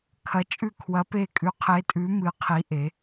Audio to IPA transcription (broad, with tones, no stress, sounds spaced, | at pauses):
kʰ ɐ˨˥ t͡ʃʼ ʉ˦˨ kʰ w ɐ˨˥ p e˦˨ kʼ ʉ˨˥ qʰ e˨˥ tʼ ʉ˨˥ m ɨ˨˥ qʰ i˨˥ ʔ e˨˥